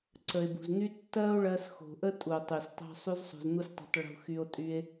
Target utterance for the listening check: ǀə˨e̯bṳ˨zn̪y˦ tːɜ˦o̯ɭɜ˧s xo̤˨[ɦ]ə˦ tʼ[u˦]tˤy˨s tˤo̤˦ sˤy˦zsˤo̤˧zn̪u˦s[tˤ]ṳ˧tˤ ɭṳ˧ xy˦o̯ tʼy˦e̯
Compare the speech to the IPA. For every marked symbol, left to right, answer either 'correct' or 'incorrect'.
incorrect: ʔ, incorrect: u˨, correct

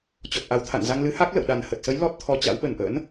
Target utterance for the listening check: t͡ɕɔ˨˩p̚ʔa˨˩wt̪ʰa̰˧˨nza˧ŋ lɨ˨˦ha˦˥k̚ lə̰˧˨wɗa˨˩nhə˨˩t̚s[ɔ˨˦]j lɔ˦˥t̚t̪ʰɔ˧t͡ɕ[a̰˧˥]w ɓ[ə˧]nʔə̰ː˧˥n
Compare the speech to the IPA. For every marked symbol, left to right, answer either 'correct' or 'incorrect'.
incorrect: ə˨˦, correct, incorrect: ə˨˩

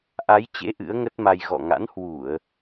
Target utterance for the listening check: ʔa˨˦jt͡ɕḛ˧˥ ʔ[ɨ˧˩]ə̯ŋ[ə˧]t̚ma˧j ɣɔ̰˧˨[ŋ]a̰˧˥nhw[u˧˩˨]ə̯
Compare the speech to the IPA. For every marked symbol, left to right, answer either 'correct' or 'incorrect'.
incorrect: ɨ̰˧˥, incorrect: ə˦˥, correct, correct

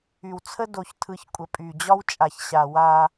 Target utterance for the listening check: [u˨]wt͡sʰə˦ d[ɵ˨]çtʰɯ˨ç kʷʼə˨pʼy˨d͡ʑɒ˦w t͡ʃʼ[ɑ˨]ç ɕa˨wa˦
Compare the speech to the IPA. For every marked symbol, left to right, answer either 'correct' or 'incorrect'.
incorrect: y˨, incorrect: o˨, incorrect: a˨

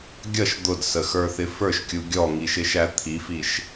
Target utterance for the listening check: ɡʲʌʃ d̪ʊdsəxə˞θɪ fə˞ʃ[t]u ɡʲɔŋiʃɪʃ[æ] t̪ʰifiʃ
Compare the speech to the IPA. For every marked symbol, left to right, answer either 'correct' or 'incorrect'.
incorrect: kʲ, correct

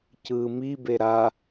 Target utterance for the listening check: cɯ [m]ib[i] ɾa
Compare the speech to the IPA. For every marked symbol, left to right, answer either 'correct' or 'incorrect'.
correct, incorrect: e

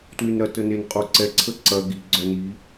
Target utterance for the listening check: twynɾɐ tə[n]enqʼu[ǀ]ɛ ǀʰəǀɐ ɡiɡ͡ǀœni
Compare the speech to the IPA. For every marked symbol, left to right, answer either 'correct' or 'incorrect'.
correct, correct

